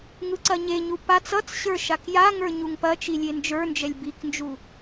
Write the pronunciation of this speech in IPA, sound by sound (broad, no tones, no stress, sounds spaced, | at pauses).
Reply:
ŋ ɯ ǀ ɐ ɲ e ɲ u p a t͡s ʌ t͡s ɕ ə˞ ʃ a k j a ŋ ə˞ ɲ u ŋ p ɐ t͡ʃ i lʲ e n d͡ʒ ə˞ n d͡ʒ ɛ lʲ b i k n d͡ʒ u